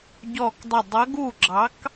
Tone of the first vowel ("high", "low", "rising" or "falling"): falling